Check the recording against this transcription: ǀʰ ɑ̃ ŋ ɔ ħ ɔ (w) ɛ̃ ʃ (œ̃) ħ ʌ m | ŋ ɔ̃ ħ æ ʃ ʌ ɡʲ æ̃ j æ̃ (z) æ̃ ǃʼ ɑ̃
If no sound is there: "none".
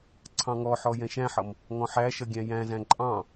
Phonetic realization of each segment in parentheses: j, æ̃, z

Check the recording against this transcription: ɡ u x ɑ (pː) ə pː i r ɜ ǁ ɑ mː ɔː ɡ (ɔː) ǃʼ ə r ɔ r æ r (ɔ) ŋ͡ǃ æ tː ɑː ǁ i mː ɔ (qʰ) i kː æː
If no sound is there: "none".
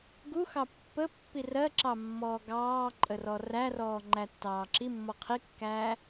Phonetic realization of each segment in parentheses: pː, ɑː, ɔː, qʰ

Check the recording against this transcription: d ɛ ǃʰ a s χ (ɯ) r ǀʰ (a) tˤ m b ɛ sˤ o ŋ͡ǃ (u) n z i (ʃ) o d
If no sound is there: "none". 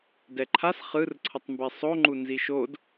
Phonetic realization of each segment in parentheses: ɯ, ʌ, u, ʃ

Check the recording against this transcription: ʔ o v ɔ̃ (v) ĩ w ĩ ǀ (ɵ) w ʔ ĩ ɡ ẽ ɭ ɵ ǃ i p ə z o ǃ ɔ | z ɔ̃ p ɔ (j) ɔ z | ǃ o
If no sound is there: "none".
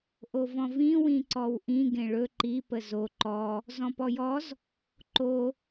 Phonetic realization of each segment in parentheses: v, ɔ, j

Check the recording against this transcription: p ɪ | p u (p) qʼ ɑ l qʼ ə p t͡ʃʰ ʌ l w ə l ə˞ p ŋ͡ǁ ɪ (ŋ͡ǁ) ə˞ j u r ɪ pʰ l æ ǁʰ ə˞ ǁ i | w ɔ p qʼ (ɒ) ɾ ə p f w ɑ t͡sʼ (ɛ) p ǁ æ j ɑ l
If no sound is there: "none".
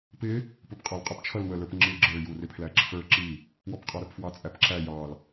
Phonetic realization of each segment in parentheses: p, ɡ͡ǁ, ɑ, æ

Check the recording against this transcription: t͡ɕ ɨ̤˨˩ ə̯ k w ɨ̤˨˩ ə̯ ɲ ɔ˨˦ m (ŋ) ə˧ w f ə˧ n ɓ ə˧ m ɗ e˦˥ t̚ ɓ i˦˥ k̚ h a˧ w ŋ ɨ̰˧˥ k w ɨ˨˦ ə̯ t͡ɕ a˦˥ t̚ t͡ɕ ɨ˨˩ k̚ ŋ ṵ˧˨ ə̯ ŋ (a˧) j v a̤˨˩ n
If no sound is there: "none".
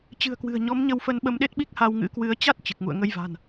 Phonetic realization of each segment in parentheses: ɲ, ə˧

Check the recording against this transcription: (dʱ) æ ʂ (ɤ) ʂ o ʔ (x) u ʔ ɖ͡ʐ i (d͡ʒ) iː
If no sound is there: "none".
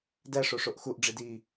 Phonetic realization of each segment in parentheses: d, o, x, d

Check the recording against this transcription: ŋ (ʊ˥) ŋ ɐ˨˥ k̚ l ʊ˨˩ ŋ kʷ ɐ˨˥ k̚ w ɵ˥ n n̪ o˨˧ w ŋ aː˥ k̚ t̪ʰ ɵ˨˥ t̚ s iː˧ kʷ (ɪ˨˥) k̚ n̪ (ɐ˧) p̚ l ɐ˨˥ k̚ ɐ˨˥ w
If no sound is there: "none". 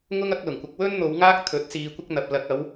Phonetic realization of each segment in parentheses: ʊ˥, ɪ˥, ɐ˧

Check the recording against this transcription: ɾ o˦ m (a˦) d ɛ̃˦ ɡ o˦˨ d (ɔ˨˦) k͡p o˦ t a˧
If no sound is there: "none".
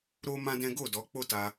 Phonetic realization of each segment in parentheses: ã˦, ɔ˨˦

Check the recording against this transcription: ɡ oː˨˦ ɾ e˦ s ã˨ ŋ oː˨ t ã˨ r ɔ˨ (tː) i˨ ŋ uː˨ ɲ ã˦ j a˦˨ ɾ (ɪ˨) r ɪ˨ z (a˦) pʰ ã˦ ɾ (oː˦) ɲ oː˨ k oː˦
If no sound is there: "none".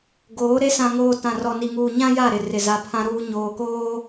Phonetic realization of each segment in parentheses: n, ɪ˨, a˨, uː˦

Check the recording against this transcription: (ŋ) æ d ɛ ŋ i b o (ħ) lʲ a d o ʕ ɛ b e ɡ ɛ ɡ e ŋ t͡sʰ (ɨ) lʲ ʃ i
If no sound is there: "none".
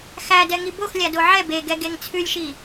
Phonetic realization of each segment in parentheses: x, x, ʉ

